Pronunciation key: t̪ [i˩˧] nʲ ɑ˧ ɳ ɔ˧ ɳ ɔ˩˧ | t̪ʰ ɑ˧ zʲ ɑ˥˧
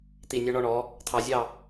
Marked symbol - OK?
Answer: no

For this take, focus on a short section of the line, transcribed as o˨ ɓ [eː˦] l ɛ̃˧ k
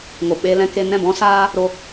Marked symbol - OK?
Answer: no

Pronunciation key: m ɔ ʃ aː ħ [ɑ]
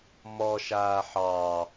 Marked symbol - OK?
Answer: yes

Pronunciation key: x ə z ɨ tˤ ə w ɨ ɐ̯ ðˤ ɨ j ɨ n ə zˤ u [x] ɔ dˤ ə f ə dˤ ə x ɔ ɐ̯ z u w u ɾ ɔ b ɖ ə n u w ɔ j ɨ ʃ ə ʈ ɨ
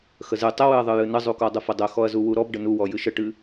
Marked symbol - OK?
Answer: no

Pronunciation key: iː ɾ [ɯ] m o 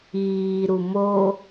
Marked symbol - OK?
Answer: no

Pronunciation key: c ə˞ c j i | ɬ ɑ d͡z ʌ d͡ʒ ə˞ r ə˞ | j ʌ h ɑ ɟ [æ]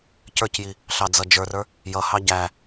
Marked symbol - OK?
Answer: yes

